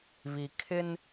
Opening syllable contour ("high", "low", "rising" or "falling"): low